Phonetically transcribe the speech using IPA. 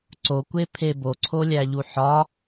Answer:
ǀokʷepʰe boǀʰolʲæʎu ħɒ

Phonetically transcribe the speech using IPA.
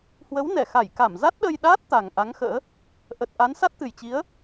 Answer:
hwə˨˦wnɛ˧˩ xa˧˩jka˧˩m za˦˥t̚ɗə˧jɗaː˦˥t̚t̪a˨˩ŋ ʔa˨˦ŋxə̰ː˧˥ | ʔə˨˩t̚ʔa˨˦n sa˦˥t̚t̪ɨ˨˩jt͡ɕi˨˦ə̯

